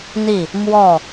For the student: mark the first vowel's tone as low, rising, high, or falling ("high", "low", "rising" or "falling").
falling